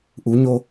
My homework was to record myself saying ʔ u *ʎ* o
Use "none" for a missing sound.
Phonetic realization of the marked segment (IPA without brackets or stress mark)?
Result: ɲ